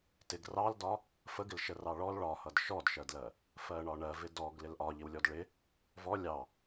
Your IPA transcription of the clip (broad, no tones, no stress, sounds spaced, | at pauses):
t ɪ ɡ r ɑ l d ɒ | f ə ɡ ɪ l ʃ ə r ɑ ɭ ɔ l ɭ ɒ h ʌ d ʃ ɔ d ʃ ɜ d l ɜ | f ɜ ɳ ɒ ɳ ɜ v ɪ d ɔ ɡ l ɪ l ʔ ɒ ʎ ɪ w lʲ ɔ d ɭ ɪ | v ɔ lʲ ɑ